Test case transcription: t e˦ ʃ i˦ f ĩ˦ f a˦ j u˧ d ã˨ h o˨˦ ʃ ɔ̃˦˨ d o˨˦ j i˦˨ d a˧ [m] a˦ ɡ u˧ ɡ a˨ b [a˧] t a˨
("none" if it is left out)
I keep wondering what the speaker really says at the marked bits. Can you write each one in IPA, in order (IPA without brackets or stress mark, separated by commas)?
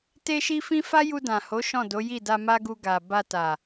m, a˧